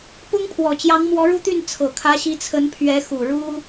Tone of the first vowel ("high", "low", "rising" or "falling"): high